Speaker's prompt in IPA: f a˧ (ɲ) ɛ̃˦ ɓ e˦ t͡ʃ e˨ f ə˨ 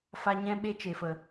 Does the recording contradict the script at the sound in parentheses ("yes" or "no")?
no